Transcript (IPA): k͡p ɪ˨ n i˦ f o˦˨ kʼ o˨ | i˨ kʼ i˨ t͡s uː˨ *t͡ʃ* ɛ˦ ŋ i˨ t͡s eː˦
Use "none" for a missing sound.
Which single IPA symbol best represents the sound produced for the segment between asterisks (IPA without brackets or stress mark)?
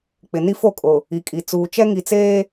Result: t͡ʃ